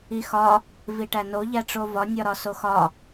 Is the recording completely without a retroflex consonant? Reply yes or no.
no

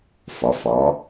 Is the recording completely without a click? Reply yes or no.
yes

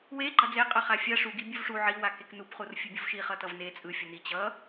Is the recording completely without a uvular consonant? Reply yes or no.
no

